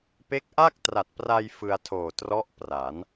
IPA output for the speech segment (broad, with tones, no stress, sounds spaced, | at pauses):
p e˦˥ k̚ ʔ a˥˩ k̚ t r a˨˩ t̚ p r a˧ j f ɯ˧ a̯ tʰ oː˨˩ t r ɔ˦˥ ʔ p r a˩˦ n